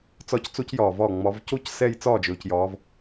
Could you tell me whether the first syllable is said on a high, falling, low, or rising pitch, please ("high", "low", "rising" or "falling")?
falling